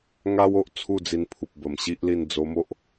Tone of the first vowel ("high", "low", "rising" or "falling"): high